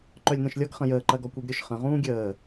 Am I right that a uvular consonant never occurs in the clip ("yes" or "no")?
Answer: no